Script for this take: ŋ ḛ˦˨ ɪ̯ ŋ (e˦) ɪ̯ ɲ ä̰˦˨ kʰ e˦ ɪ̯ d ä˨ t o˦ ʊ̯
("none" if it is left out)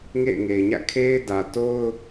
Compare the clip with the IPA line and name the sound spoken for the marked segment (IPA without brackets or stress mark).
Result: e˨